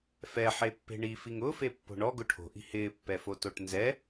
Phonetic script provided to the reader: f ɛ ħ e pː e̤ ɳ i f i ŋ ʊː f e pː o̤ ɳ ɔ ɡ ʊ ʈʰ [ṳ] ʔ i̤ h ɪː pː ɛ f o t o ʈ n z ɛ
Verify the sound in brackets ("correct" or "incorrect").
incorrect